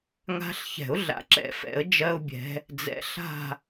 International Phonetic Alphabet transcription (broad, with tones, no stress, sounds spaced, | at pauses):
ŋ a̤˦ ɬ ç ɛ̤˨˩˦ ʊ̯ ɮ a̰˨ ǁ ɛ̰˨ f ɛ̰˨˩˦ ə̯ d͡ʒ ɜ˦ ʊ̯ bʲ ɛ̤˨˦ | d͡z ɛ̰˨˦ ɬ a̤˦˨